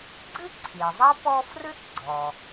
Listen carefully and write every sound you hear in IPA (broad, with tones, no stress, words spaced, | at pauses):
ɡ͡ǀɨ˥ǀʰi˩zˤɐ˥ pɔ˥ frɨ˥t ɡ͡ǀɔ˩